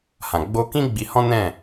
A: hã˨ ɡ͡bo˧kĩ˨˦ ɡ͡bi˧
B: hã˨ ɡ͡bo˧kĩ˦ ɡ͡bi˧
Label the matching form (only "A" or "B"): B